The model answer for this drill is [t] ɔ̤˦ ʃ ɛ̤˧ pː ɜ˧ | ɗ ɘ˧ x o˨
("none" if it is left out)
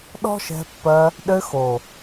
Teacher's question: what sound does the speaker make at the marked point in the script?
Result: ɗ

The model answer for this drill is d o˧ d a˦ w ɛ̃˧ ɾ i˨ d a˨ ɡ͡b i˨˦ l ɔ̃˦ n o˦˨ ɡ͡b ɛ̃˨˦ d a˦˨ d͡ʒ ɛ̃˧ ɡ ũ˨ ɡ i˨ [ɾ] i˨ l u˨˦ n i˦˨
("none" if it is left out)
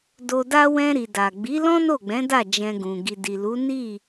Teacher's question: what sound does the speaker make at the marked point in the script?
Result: d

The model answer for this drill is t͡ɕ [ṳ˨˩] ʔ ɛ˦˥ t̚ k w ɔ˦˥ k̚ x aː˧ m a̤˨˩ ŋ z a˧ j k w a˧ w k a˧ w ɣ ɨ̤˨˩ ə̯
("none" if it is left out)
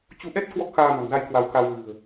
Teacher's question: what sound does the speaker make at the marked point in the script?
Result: u˨˦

